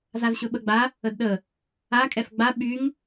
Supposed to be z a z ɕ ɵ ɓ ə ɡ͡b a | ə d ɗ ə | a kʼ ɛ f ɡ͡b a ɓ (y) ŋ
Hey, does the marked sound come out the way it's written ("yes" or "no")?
yes